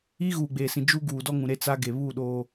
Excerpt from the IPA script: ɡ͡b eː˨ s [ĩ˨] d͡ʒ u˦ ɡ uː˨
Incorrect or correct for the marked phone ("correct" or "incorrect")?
correct